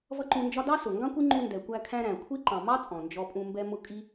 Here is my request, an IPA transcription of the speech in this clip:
v ʌ˦ ǃ ũ˧ n d͡ʒ ɒ˦ d ɑ˦ s ʊ˨ ŋ ɡ ɑ̃˦ kʷ i˦ ŋ͡ǃ u˧ n d ɛ˨ kʷ æ˧ kʰ æ̃˧ ɾ æ̃˨ kʷʰ i˦ ǃ ɑ̃˨ m ɑ˦ t͡sʼ ɔ̃˨ n d͡ʒ ɔ˧ pʼ ũ˧ m b ɛ˧ m ʊ˧ kʼ i˦

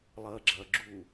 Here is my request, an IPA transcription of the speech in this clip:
lˠ ɐː ɡ͡ǁ ɐː ɡ͡ǁ u

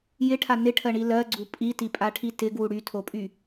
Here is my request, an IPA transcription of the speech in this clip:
j ɪ ʈʰ a n ɪ ʈʰ ɜ ɳ i l ɜ ɡ͡ǀ u pʼ i t i pʼ a ʈʰ i t ɪ ɡ w u ɽ y tʰ o pʼ y

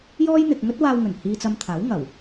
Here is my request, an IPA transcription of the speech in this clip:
j ɔː˥ j n̪ ɪ˨ k̚ ŋ ɵ˥ t̚ w aː˧ w ŋ ɵ˨˩ n h iː˧ t͡s ɐ˧ m t̪ʰ aː˨˥ w ŋ ɐ˨˩ w

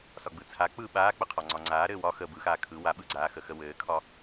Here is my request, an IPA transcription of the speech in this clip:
s ɒ ɡ͡b ɯ t͡sʰ a k͡p ɯ ɓ aː k͡p ə qʰ ɒ ŋ͡ǀ ɒ ŋ͡ǀ aː ɾ ɘː w ɒ x ə b ɯ x aː kʰ ɯ w a ɓ ɯ ɡ͡ǀ aː x ə x ə w ɘː kʰ ɒ

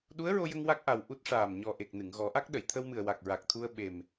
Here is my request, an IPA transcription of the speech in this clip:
ɗ u˧˥ ə̯ ɹ o˧ j ə˧ ŋ w a˦˥ k̚ ʔ a˨˩ w ʔ u˦˥ t̚ ʂ aː˨˩ m ɲ ɔ˨˩ ʔ e˨˩ k̚ n ɨ˨˩˨ ŋ ɣ ɔ˨˩˦ ʔ a˦˥ k̚ ɗ ə˨˩˨ j t̪ʰ ə˧ w m ɨ˨˩ ə̯ w a˨˩ k̚ ɹ a˨˩ k̚ t̪ʰ u˧ ə̯ ɓ e˨˩ m

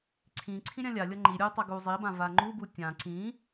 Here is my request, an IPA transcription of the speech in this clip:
ǀʰ ĩ ǀʰ ĩ ɾʲ ã lʲ a lʲ ʌ ŋ͡ǃ i ɾʲ u tˤ a ɡ u zˤ i b ã v a ŋ͡ǃ u b u tʲ ã ǀ ĩ

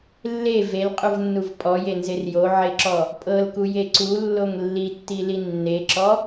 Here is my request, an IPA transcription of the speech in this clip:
lː e v e l qʼ u v nː u v pʼ ɔ j e n z e r j o ʕ e ǁ ɔ | pʼ ɤ l k u j e ǀ u lː o ŋ lː i tː i l i nː e ǁ ɔ

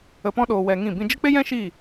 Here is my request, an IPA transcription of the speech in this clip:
ə˨ p ɔ̃˧ ɗ oː˨ w ɛ˧ ŋ ĩ˦˨ b ĩ˦ d͡ʒ ə˦ k͡p e˦ j ɛ̃˦ ʃ iː˦˨

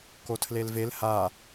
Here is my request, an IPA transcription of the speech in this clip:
k o tʰ l e l v e l h a

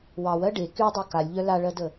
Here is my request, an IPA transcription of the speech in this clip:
w ɑ w ɜ ɖ e k y dˤ e k a lʲ ʎ œ l a ɭ ɜ d ə

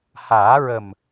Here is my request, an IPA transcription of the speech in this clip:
h aː˨˩˦ ɹ ə˨˩ m

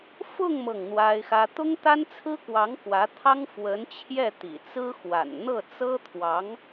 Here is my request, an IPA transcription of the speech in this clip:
f ʊ˥˧ ŋ m ɤ˥˩ ŋ n̪ w a˥ ɪ̯ x ä˥ t̪ ʊ˥ ŋ t̪ a˥ n t͡sʰ ɹ̩˥ k w ɑ˧˥ ŋ k w ä˧˥ t̪ʰ ɑ˥ ŋ f w ə˧˥ n t͡ɕʰ j ɛ˥˩ t̪ ḭ˨˩ t͡s ɹ̩˥ x w a̰˨˩ n n̪ ɤ˥˩ t͡s ɤ˥ t̪ʰ w ɑ˧˥ ŋ

